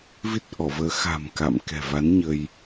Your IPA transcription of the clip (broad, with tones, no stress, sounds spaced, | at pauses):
v i˦˥ t̚ ʔ ɔ˧˩ v əː˨˦ x a̤˨˩ m k a̰˧˨ m k ɛ̤˨˩ v a˨˦ n ɲ ə˧ j